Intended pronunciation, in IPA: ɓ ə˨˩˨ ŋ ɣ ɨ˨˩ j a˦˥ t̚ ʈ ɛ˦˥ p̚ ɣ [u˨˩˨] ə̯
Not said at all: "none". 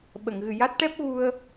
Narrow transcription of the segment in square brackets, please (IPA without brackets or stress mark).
u˧